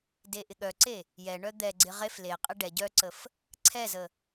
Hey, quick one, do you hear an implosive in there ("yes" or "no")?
yes